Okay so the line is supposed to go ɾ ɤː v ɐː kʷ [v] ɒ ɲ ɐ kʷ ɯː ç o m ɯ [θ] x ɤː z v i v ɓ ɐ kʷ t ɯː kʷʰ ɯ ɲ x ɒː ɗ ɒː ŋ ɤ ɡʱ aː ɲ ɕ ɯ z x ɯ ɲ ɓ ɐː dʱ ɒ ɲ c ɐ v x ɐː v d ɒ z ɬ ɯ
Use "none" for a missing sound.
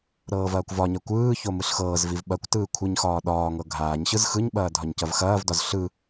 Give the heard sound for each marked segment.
v, ɬ

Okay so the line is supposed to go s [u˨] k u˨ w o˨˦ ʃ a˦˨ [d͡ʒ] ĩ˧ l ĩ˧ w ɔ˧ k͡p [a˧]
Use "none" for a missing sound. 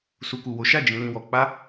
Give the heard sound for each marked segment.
u˨, d͡ʒ, a˦

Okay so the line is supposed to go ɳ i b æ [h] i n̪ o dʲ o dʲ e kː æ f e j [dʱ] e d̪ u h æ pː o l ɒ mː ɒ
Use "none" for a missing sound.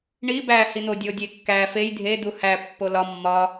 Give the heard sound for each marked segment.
h, dʱ

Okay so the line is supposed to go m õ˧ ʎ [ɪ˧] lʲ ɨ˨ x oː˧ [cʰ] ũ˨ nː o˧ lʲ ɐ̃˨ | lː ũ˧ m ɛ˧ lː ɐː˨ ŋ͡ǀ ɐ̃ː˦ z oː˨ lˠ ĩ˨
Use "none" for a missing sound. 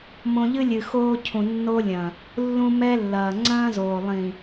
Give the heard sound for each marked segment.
ɨ˧, cʰ

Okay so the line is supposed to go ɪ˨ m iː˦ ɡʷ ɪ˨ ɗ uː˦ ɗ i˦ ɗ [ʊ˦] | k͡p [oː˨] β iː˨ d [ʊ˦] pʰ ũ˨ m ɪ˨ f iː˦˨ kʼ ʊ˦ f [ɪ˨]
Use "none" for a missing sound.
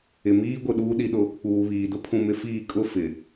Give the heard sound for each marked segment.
ʊ˦, uː˨, ʊ˦, ɪ˨

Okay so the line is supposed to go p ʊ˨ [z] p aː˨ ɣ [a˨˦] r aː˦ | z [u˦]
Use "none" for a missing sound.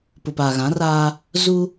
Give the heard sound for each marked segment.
none, ã˨˦, u˦

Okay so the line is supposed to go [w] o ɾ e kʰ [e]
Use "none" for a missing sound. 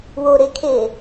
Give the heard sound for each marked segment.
w, e

